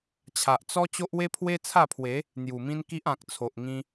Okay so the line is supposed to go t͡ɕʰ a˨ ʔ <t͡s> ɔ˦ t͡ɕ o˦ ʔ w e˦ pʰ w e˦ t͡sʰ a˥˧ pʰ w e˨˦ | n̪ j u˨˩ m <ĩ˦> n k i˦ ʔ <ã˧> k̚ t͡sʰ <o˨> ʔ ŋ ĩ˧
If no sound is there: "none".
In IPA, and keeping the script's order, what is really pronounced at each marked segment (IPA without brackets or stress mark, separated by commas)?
t͡s, ĩ˦, ã˨, o˨